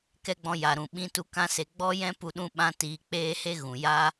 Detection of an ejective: absent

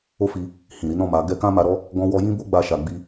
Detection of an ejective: absent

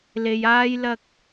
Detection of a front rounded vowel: absent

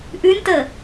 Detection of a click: absent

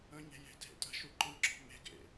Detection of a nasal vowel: present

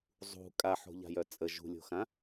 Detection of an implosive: absent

